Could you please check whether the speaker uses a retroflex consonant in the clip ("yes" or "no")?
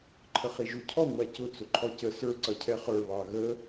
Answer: no